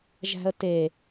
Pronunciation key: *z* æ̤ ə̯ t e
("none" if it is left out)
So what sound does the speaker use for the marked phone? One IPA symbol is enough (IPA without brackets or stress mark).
ʒ